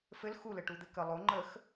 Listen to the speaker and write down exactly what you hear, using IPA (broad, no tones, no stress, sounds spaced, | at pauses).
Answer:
f ɘ l x u l ɘ ʈ u d̪ ɘ k ə lˠ o ŋ͡ǃ ə x